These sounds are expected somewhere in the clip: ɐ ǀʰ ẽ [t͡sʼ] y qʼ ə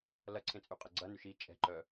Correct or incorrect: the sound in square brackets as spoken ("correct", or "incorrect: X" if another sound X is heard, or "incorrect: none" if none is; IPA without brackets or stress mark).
correct